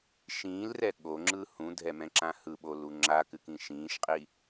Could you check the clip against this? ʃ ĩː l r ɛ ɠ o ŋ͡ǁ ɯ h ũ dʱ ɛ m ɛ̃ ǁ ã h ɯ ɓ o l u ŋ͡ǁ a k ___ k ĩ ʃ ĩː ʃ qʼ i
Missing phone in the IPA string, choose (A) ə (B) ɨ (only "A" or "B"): B